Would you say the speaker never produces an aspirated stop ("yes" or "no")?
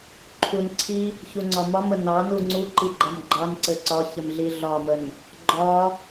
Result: no